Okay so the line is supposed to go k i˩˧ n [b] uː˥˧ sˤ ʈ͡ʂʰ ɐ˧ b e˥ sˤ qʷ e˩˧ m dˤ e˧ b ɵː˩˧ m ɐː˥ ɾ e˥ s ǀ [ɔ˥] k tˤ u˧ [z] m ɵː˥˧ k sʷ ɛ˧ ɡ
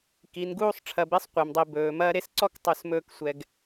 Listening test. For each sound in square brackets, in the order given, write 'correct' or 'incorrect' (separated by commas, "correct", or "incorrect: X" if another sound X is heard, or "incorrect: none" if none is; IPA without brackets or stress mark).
incorrect: ɡ, correct, incorrect: s